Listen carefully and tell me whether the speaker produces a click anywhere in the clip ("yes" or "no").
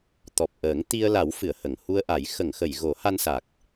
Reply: no